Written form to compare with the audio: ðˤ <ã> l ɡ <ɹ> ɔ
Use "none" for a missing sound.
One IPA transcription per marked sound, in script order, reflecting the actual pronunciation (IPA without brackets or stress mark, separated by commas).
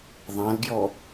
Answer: ã, j